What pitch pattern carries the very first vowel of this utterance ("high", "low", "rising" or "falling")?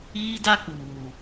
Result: high